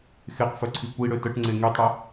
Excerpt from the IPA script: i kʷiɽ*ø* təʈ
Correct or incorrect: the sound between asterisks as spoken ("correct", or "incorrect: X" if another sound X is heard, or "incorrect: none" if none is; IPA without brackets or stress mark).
correct